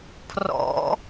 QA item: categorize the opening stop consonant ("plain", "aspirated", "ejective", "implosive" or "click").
aspirated